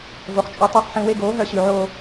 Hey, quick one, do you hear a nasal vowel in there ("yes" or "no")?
yes